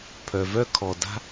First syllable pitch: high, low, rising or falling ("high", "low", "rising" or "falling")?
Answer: low